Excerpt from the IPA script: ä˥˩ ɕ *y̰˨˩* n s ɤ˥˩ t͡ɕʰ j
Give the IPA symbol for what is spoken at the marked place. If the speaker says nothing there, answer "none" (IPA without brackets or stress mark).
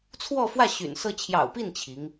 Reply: y̰˨˩